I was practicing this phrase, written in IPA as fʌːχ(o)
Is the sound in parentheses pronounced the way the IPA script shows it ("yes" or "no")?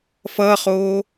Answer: no